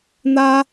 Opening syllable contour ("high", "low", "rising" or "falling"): high